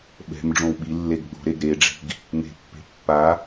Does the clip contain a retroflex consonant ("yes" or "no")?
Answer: yes